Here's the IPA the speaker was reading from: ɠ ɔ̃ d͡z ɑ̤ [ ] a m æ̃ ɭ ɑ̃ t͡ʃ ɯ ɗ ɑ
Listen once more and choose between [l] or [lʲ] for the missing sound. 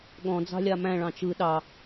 lʲ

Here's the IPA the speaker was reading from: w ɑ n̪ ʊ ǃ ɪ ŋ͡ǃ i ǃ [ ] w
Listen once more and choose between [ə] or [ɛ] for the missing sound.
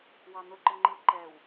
ɛ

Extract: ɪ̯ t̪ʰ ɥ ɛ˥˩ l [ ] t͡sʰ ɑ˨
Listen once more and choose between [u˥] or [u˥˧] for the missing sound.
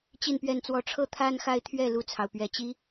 u˥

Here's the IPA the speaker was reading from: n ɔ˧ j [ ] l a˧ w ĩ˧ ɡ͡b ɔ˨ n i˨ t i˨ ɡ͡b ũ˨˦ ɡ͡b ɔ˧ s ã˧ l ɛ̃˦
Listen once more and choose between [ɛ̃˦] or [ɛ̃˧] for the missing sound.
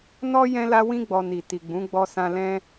ɛ̃˧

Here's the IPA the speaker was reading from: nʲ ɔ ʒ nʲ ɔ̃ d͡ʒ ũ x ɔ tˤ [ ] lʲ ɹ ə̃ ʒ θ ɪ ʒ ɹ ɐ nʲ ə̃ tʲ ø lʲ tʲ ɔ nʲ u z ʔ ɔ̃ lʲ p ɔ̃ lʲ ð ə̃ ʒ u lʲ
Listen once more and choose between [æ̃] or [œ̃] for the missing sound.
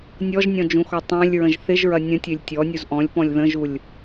œ̃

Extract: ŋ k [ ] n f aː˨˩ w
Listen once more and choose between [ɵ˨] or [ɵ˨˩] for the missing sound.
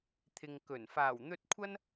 ɵ˨˩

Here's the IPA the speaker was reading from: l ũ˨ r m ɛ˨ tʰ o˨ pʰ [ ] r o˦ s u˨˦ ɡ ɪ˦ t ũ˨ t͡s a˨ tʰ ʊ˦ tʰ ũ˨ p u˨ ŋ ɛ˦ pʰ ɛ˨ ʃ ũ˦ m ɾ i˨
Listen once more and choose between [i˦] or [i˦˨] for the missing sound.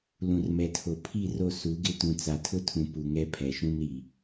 i˦˨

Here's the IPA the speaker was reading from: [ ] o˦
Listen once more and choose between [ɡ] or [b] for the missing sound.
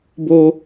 b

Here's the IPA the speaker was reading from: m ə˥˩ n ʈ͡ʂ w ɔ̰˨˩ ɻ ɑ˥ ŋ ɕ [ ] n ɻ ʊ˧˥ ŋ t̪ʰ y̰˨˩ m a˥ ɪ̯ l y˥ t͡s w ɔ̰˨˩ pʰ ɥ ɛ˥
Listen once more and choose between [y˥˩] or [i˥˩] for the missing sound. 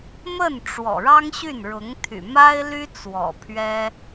y˥˩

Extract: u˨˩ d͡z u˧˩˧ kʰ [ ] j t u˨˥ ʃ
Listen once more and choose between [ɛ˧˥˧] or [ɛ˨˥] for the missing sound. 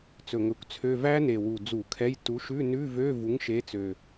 ɛ˧˥˧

